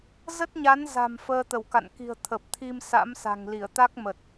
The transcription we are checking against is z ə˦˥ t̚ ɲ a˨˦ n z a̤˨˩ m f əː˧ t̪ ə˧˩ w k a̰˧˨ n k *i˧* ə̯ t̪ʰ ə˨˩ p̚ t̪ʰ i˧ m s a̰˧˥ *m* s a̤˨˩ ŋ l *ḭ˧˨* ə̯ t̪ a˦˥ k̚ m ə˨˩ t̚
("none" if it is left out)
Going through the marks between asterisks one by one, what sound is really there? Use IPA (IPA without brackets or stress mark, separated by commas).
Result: i̤˨˩, m, i˧˩